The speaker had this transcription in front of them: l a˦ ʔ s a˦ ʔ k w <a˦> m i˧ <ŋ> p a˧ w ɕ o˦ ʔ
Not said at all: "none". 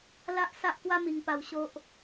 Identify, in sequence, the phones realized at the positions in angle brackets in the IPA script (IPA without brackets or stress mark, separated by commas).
a˦, ŋ